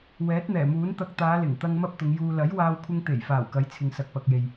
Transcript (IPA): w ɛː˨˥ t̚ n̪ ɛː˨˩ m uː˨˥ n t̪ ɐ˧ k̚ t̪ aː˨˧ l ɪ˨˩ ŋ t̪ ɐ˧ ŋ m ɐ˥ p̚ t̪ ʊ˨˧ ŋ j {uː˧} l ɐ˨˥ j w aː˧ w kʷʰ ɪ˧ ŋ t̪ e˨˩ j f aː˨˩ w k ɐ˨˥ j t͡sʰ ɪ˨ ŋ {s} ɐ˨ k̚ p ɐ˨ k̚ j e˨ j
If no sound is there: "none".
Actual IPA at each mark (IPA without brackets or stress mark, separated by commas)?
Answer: uː˧, s